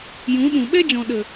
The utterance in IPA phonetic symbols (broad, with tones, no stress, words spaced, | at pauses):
jũ˨˦ɗũ˨ ɓɛ˦d͡ʒɔ̃˨ ɗə˨